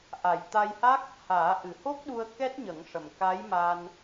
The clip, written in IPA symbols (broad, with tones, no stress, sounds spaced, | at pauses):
ʔ a˨˩ j t̪ a˧ j h a˦˥ k̚ | h aː˨˩˦ ʔ ɨ˨˩ h o˦˥ k̚ ɗ u˧ ə̯ k ɛ˦˥ t̚ ɲ ə˨˩˦ ŋ ʂ ə˨˩ m k a˧˥ j m a˧ n